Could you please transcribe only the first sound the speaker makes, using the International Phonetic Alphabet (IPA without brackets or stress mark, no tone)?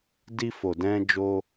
d